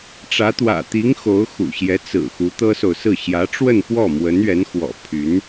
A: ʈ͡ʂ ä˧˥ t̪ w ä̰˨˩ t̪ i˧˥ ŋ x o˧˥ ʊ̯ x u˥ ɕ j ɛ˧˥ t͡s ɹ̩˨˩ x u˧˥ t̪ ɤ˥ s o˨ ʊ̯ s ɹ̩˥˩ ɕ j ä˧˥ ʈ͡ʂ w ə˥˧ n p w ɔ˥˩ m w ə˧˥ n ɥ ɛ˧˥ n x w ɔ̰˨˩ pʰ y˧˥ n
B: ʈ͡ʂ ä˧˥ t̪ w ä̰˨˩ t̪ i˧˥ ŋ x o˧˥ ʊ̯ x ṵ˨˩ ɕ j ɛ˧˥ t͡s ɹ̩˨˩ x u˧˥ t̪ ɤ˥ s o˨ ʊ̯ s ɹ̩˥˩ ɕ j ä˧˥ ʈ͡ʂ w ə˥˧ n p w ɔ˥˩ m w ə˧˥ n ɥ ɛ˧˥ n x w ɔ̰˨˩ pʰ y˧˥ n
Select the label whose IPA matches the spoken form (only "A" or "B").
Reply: B